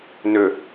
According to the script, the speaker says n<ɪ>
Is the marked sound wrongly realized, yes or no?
yes